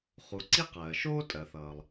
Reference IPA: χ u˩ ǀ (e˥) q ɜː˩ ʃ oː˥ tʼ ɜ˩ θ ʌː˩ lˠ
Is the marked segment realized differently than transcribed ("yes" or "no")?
yes